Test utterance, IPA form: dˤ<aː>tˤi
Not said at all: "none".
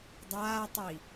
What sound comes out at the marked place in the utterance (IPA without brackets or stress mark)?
aː